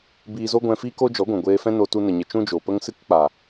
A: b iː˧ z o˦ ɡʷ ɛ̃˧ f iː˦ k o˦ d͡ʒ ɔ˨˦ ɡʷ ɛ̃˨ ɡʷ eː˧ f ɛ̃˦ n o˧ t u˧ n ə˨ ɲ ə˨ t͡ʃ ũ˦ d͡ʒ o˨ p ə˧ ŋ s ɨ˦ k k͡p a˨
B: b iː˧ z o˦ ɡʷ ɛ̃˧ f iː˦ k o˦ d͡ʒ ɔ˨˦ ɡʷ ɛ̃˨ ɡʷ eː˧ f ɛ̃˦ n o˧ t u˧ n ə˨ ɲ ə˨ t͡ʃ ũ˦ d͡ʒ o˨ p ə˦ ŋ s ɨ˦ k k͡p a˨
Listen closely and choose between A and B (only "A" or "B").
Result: B